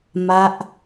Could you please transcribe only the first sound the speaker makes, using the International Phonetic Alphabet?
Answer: m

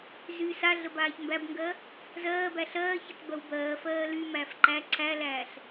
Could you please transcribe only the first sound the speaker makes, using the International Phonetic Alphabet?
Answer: z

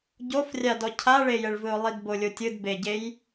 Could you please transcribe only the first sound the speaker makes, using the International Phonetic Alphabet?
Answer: ɟ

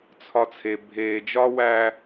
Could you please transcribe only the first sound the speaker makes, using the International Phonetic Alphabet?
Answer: t͡sʰ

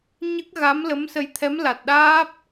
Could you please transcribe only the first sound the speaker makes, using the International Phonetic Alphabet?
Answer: ɲ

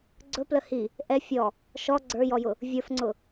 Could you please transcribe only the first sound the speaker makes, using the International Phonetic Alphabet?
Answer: ɡ͡ǀ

